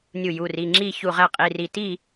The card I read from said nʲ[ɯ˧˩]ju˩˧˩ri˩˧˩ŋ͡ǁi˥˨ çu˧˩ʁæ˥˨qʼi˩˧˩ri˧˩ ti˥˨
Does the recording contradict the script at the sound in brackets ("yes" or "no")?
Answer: yes